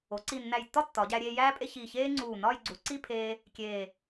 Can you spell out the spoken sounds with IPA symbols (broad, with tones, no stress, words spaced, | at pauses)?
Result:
o˩˧ǀi˧˩nːæ˧˩jtːɒ˥ tːɒ˩˧ɟæ˧ ɾʲeː˧jæː˥pʼe˥˧ çiː˧˩çeː˥ŋ͡ǀuː˧˩nɒː˥˧j ɡ͡ǀu˩˧ǀi˥˧pʰeː˧ | kʲeː˧˩